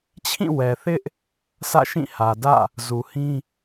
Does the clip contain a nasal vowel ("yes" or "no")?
yes